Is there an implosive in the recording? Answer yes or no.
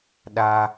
yes